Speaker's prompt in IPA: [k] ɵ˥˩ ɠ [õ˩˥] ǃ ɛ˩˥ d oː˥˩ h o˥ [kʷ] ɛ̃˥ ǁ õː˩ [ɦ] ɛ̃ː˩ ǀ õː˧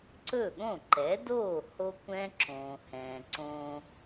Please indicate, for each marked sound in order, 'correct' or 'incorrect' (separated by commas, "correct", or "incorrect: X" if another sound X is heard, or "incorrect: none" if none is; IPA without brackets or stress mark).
incorrect: ǀ, incorrect: õ˥˩, correct, incorrect: h